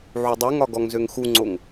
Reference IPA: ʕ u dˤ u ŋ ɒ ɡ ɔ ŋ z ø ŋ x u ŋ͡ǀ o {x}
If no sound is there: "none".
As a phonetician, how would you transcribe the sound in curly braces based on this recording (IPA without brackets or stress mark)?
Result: ŋ